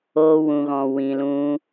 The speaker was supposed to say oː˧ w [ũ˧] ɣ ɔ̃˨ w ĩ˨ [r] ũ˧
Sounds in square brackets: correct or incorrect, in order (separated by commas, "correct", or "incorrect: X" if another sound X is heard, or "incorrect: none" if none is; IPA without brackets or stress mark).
incorrect: ũ˨, incorrect: l